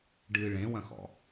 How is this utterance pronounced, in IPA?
ɖ ɨ ɭ ẽ w ɐ̃ x ɔ̰

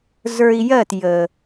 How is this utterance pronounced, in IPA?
z ə˞˧ i̯ j ɜ˦˨ t j ə˨

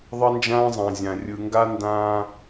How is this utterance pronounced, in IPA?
ðˤ ʌ˦ n d͡ʒ ãː˦ zˤ ã˨ zʲ ã˨ rʲ ɯ˨ ŋ ɡ a˦ n d ãː˦

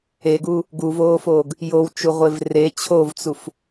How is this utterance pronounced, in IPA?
e ɡ uː | ɡ u v oː f oː ɡ | j o w t͡ʃ u ʁʷ e v r e t͡ɕʰ o v t͡s u f

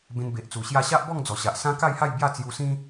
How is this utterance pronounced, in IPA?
b ẽ˧ n b e˨ ʔ t͡s u˨˩ ɕ j a˥˧ ɕ a˦ ʔ b ɔ˥˧ ŋ d͡z ɔ˨˩ ɕ a˨ ʔ s ã˦ k a˥˧ j h a˥˧ j b j a˥˧ t͡s j u˧ s ĩ˦

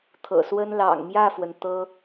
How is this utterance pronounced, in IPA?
t̪ʰ ɤ̰˨˩ s w ə˥ n l ɑ̰˨˩ ŋ m j ä˥˩ f w ə˩ n t̪ ɤ˥

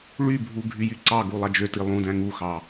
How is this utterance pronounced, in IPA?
ɭ y bʱ u ɡʱ y j y ǀ ɑ ɡ u lˠ ɑ d͡ʒ ø t i lˠ ũ d æ̃ ŋ u x ɑ

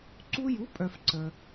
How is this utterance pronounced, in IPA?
ǀ u˧ j u˩˥ pʼ œ˩ f ǀ ə˩

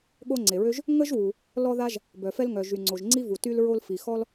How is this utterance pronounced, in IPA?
ɠ o˥ ŋ͡ǀ e˩ ɹ ø˥ ʒ | ŋ ə˥ ʒ w u˩ | l ɔ˥ ð a˥ ʒ | b œ˩ f ɛ˥ l ŋ œ˩ ʒ y˩ ŋ͡ǀ o˩ ʒ ŋ͡ǀ i˥ v u˩ t y˥ l ɹ o˥ l f i˩ x ɔ˥ l

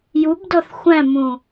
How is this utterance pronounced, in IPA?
j u b d ɔ θ xʷ æ̃ m ũ

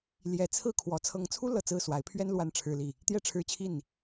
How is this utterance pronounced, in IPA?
l j ɛ˨˦ t͡sʰ ɹ̩˥˨ kʰ w ɔ˨˦ t͡sʰ ɤ˨˦ ŋ t͡sʰ u˦ l ɤ˨˩ t͡s ɹ̩˥˨ s w a˨˦ ɪ̯ pʰ ɥ ɛ˦ n l w a˦ n ʈ͡ʂʰ ɻ̩˦ l i˥˨ | t̪ j ɛ˥˨ ʈ͡ʂʰ ɻ̩˦ t͡ɕʰ i˥˨ n

